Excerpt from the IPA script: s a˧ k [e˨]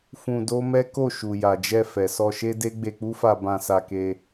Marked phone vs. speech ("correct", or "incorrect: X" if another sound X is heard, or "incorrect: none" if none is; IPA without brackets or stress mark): incorrect: e˧